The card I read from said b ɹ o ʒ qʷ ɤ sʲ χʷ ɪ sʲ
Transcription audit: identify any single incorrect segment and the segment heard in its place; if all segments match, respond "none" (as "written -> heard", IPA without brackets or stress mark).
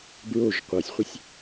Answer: none